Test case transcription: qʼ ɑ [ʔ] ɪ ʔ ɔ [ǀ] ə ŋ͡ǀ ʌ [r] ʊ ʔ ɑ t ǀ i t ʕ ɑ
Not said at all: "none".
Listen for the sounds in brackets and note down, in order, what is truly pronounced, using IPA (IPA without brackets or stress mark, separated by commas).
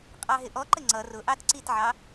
ɦ, ǃ, r